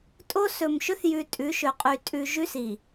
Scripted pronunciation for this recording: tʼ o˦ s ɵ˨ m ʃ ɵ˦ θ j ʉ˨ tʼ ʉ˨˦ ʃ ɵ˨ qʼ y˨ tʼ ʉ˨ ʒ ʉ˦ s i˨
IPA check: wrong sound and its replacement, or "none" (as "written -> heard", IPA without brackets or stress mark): none